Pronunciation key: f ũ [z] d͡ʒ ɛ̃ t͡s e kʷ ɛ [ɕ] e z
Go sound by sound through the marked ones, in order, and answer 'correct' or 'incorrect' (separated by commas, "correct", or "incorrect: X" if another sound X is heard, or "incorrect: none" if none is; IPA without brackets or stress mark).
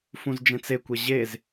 correct, incorrect: ʑ